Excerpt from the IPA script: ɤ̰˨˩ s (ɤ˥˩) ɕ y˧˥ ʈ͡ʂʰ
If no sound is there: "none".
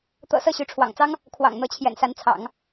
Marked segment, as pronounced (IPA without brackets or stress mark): ɤ˥˩